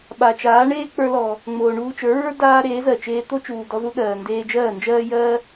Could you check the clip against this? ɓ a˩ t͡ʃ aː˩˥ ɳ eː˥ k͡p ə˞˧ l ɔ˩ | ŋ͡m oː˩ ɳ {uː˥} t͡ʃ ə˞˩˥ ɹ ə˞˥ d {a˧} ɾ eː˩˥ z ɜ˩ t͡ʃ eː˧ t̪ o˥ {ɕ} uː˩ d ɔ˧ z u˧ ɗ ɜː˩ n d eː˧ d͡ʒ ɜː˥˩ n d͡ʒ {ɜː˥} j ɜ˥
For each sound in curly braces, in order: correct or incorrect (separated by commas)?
incorrect, incorrect, incorrect, correct